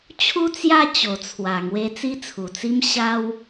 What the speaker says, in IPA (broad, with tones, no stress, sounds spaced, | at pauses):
t͡ɕʰ u˥˧ t͡s j a˥˧ t͡ɕ o˨˩ t͡sʰ w a˨˩ ŋ w e˧ t͡s i˦ t͡sʰ u˨˩ t͡s i˦ m ɕ a˦ w